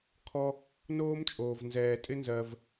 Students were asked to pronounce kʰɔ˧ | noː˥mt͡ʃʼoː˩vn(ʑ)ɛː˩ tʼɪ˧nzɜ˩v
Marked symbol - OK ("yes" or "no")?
no